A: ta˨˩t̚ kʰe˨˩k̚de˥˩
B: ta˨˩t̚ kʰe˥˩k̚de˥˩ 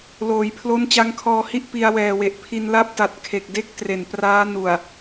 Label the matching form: A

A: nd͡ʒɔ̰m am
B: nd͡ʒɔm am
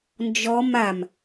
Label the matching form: B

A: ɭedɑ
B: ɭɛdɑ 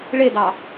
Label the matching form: A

